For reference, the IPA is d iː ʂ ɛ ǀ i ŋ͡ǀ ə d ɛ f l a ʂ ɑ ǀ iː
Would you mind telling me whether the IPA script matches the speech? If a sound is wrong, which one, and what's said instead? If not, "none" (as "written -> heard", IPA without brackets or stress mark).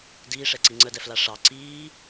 none